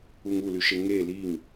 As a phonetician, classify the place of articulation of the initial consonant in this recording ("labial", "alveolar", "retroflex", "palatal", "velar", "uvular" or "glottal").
velar